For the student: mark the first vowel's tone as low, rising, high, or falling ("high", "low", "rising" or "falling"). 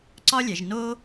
high